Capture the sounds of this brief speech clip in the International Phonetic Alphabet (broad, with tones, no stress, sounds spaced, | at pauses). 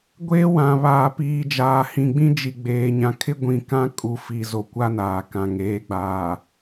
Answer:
ɡʷ eː˦ w ã˨ β aː˨ p iː˨ d͡ʒ aː˨ h ĩ˨ ɡ͡b ĩ˦ d͡ʒ i˨ ɡ͡b eː˨ ɲ ã˨ kʰ ɪ˦ ɡʷ ĩ˨ k ã˦ kʼ u˨ f i˨ z o˨ kʷ a˦ n aː˨ k ã˨ ŋ eː˨˦ ɡ͡b aː˨